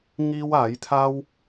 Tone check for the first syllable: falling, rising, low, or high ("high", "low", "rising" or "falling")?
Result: high